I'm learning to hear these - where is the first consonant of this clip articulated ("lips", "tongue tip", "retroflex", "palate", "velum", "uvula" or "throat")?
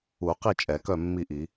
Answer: uvula